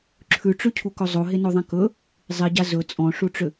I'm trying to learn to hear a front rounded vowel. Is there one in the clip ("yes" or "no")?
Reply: yes